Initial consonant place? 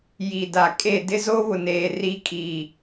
palatal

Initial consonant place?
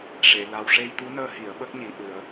retroflex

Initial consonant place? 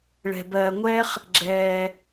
retroflex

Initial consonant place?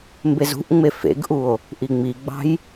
labial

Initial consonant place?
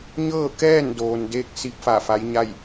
palatal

